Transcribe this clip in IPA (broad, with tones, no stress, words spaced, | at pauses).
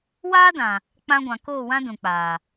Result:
waː˦dã˨ | k͡pã˧ɡʷã˨ koː˦˨wã˦ dũ˨k͡paː˨